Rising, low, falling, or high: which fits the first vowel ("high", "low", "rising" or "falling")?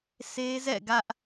high